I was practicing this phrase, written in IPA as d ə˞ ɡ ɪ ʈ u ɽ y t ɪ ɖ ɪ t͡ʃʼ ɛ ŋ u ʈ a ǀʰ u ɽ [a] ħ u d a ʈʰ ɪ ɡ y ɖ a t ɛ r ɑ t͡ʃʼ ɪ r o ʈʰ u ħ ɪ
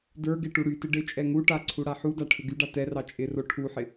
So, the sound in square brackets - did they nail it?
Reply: yes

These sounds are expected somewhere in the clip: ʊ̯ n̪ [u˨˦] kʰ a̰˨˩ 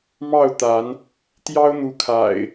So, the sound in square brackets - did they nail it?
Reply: yes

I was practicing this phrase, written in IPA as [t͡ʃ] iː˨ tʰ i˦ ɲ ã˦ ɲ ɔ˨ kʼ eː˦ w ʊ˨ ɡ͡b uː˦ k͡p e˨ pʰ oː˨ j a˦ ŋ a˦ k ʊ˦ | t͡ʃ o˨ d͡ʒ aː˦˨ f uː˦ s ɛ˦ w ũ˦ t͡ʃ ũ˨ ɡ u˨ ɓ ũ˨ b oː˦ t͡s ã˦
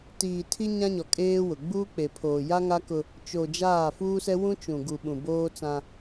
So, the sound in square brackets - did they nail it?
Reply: no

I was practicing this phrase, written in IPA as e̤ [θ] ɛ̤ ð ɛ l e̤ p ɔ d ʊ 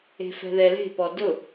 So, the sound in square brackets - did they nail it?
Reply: no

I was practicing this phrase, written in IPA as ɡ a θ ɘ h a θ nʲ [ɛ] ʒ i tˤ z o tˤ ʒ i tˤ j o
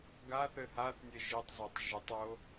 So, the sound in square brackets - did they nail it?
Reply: no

